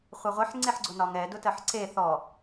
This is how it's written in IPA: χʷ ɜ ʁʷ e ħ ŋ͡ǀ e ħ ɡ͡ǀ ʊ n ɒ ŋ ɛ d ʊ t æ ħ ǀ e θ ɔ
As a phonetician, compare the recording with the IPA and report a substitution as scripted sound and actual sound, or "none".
æ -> ɜ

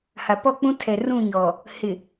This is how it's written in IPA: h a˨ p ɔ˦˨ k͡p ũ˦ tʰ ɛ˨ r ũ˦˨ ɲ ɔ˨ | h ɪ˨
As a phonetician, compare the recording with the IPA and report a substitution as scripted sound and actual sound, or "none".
none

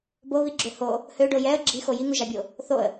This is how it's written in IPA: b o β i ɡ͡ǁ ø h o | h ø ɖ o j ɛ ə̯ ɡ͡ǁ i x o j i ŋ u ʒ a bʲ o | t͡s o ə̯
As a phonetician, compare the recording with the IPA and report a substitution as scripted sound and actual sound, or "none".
t͡s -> θ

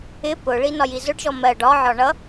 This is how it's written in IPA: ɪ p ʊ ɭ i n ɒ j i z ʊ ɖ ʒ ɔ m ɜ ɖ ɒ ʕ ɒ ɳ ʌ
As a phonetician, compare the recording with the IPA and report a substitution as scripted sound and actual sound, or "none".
none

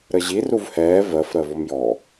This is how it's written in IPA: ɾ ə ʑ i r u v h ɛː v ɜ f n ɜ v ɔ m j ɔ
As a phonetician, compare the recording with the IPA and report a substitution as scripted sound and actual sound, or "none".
n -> ɾ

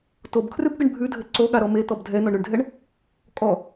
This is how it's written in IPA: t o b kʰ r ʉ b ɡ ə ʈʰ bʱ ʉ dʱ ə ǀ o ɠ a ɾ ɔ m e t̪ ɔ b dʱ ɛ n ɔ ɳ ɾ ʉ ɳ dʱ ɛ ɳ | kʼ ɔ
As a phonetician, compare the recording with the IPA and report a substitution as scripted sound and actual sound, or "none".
ʈʰ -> ɳ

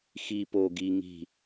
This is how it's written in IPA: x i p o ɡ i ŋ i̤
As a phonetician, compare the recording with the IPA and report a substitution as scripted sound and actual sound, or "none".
none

